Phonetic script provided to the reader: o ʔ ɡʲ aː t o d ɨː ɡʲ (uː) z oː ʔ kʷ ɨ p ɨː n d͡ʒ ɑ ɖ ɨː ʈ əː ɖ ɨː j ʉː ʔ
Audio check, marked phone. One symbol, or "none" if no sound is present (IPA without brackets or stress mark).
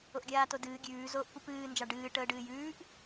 ʉː